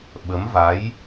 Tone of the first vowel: rising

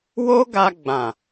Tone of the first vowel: high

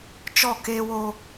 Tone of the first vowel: falling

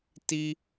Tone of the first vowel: high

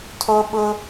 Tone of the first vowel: high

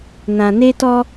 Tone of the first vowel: low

